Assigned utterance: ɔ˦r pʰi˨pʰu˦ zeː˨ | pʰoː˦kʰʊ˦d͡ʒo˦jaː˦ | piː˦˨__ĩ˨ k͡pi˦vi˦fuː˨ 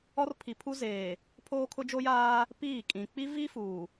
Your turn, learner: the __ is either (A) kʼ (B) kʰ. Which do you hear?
A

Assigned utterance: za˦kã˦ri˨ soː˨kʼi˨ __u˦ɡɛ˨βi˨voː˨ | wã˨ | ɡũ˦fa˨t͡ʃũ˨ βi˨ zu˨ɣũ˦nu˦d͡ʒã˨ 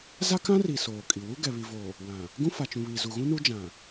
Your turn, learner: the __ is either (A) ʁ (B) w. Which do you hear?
B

